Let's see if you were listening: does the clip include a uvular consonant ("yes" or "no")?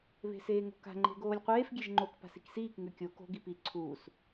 yes